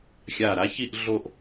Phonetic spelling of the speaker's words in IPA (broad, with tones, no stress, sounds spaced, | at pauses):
xʲ a˧˩ ɾ a˥ ç i˥˧ ʔ ɮ o˥˧ ʔ